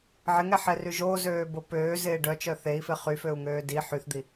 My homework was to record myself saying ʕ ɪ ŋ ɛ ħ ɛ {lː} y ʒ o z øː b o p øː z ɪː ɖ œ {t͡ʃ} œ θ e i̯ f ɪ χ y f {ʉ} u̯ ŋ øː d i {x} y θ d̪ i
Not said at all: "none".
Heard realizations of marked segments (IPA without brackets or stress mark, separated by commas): r, t͡ʃ, ø, ħ